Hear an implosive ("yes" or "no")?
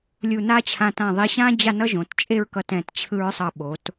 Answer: yes